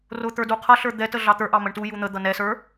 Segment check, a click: absent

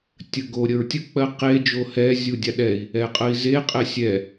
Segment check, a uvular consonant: present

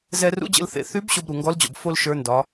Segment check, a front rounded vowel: present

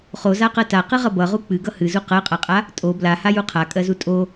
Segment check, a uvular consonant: present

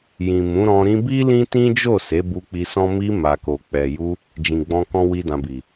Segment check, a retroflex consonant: absent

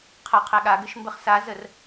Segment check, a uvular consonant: present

